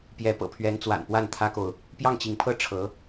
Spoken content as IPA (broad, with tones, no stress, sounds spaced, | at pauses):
p j ɛ˧˥ p ɤ̰˨˩ pʰ ɥ ɛ˧˥ n t͡s w a̰˨˩ n p w a˥˩ n t̪ʰ ä˥ k o˨ ʊ̯ | p j ɑ˥˩ ŋ t͡ɕ i˧˥ ŋ pʰ ɤ˥ ʈ͡ʂʰ ɤ˧˥